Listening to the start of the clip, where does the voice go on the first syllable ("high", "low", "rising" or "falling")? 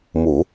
low